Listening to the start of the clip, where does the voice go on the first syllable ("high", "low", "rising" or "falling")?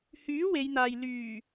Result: rising